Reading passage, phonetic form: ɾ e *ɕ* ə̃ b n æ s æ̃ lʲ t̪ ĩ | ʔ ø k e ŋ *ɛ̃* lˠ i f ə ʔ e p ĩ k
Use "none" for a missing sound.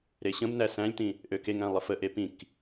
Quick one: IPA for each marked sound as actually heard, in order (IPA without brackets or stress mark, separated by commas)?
ɕ, æ̃